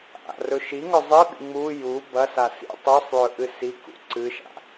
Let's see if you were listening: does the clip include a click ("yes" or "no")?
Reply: yes